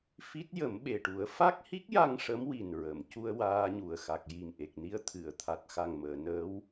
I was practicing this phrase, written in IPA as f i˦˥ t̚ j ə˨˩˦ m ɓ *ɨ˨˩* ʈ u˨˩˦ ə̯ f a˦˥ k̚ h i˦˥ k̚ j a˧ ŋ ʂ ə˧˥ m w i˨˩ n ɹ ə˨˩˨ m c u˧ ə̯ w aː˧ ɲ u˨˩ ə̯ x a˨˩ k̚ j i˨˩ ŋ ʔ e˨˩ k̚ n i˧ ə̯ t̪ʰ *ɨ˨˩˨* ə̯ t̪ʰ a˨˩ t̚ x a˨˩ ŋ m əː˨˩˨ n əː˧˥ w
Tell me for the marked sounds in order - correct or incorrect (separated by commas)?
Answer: incorrect, correct